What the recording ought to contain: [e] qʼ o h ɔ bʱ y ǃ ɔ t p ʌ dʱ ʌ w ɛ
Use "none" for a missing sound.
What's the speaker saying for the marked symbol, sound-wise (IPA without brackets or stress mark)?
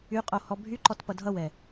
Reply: y